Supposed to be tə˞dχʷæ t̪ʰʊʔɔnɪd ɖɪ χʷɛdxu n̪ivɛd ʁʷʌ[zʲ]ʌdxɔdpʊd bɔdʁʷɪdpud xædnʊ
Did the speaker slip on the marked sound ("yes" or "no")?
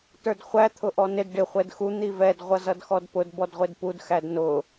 yes